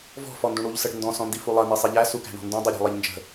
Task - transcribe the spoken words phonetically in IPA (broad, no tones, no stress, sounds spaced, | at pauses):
v ɔ̤ f ɔ n d ũ ɽ u ʎ s ə ɽ ə̤ n d ɔ̃ s ɔ̃ n d i f u lˠ ɐ n i sˤ i ʎ æ s u k æ̤ ɳ ɔ̤ n d ũ dˤ i ɾʲ æ̤ lˠ i ʎ n d͡ʒ ə̤